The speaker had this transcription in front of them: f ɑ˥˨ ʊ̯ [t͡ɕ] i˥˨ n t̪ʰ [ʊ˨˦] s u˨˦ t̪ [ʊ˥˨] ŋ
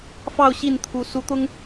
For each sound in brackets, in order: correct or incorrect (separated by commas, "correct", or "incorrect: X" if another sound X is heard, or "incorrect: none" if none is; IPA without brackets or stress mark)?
incorrect: ɕ, incorrect: u˨˦, incorrect: ʊ˦